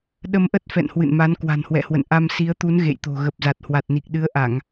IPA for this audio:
ɗ ə˧ m ʔ ə˦˥ t̚ f ɛ̰˧˨ n h w ɨ̰˧˨ n m a˨˦ n k w a̤˨˩ n h w ɛ̰˧˨ h w ə̰˧˨ n ʔ a˧ m s i˨˦ ə̯ t̪ u˨˦ n ɣ ḛ˧˨ j t̪ o̤˨˩ ɣ ə˨˩ p̚ z a˨˩ t̚ h w a˨˩ t̚ n i˨˩ k̚ ɗ ɨ˨˦ ə̯ ʔ a˧˩˨ ŋ

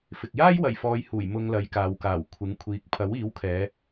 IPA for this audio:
f ɪ˨ k̚ j aː˥ j w ɐ˨˩ j f ɔː˨˧ j h uː˨˩ j m ʊ˧ ŋ l ɐ˨˧ j k aː˨ w k aː˨˩ w kʷʰ ɪ˨˥ ŋ kʷʰ iː˨ k̚ pʰ ɐ˨˥ w iː˨˥ w kʰ ɛː˨˧

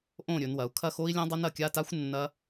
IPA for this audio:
ʔ õ˥˨ ɾʲ ɵ˩˧ n w ɐ˩˧ u̯ kʰ ɐ˥˨ x o˦˥ i̯ lʲ ã˦˥ dˤ ɐ˦˥ n ɐ˩˧ kʲ a˧˥˧ t a˦˥ xʷ nː ɐ˦˥

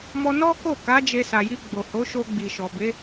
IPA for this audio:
m ɔ˧ n ɔ˦ k o˦˨ k a˨˦ d͡ʒ e˧ s a˨ j i˧ ɡ͡b o˨ h o˨˦ ʃ o˧ ɡ͡b i˨ ʃ ɔ˨ b e˨˦

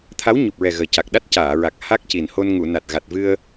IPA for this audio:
t̪ʰ a˧˥ w ɲ u˨˩ p̚ ɹ ɛ˨˩ ɣ əː˨˩ c a˨˩ k̚ ɗ a˦˥ t̚ c aː˨˩˨ ɹ a˨˩ k̚ h a˦˥ k̚ c i˨˩ n h o˧ n ŋ u˨˩˨ n a˨˩ t̚ ɣ a˨˩ t̚ v ɨ˧ ə̯

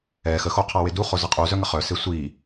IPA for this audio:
ɛ x ə x o qʰ a w e d u χ o z ə qʼ u z œ ŋ ə χ œ s e sʷ i

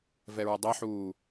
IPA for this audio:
v ɛ ɹ ə dˤ e ħ uː

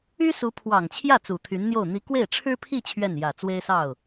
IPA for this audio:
y˥ s u˧˥ pʰ w ɑ˨˩ ŋ t͡ɕʰ j ä˥˩ t͡s u˨˩ t̪ʰ y˧˥ n n̪ j o˥˩ ʊ̯ n̪ i˧˥ k w e˥˩ ɪ̯ ʈ͡ʂʰ ɻ̩˥ pʰ i˥˧ t͡ɕʰ ɥ ɛ˥˩ n j ä˨˩ t͡s w e˥ ɪ̯ s ɑ˥˩ ʊ̯

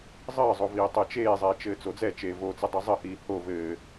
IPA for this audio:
zˤ ɘː zˤ o v iː tˤ ɛ t͡ʃ eː zˤ ɛː t͡ʃ ɘː t͡s o d͡z ɛ t͡ʃ eː v o t͡s ɘ dˤ ɘ zˤ ɘ h iː h o v ɘː

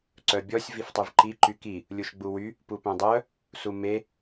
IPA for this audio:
ǀ œ bʲ ɔ sʲ v i f tˤ y v ǃ i ǃ y k i | lʲ u ʃ ɡ͡b u w y | p u p œ̃ dˤ œ | s u m e

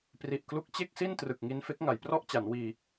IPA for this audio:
p r i˨˩ ʔ k l u˦˥ k̚ t͡ɕ e˥˩ k̚ s i˥˩ n t r ɯ˨˩ k̚ ŋ i˧ n f e˦˥ k̚ ŋ a˩˦ j p r ɔ˥˩ ʔ t͡ɕ a˩˦ n w iː˧

